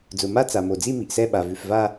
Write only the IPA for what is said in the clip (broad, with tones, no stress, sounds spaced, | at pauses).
d͡z ʊ˩ m a˥˧ t͡s a˩ m o˩ d͡z i˥˧ m i˩ ʔ s ɛ˥˧ ɓ a˩ v ʉ˩ f v a˥˧